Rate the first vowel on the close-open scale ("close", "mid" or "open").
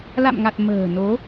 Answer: open